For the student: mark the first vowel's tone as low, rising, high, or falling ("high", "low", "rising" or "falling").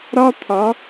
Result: high